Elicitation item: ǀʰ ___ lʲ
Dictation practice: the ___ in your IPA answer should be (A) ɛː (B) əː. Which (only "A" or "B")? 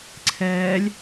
A